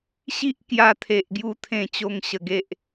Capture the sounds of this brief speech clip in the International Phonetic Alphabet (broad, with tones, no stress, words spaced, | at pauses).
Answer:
ɕi˦ʔkja˧t̪ʰe˨ʔɡju˧ t̪ʰẽ˥˧ t͡ɕo˦ŋɕə˧ɡe˦ʔ